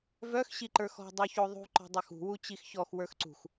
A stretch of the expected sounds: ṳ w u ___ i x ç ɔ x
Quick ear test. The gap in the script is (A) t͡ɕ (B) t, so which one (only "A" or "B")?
A